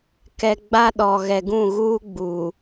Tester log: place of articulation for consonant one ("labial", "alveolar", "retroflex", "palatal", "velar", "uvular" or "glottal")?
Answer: velar